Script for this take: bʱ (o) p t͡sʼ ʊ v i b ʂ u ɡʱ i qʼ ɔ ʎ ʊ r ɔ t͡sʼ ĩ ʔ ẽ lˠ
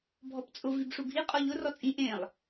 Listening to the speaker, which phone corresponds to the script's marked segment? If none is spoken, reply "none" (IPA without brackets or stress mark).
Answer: ɔ